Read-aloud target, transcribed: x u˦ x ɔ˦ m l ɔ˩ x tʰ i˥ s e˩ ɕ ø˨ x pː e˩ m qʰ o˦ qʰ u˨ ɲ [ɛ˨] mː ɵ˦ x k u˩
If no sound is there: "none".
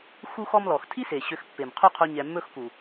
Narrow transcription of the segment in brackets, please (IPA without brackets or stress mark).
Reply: ɛ˨